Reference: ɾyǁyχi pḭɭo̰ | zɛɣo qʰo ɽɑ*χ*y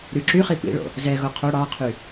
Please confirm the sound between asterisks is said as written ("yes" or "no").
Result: no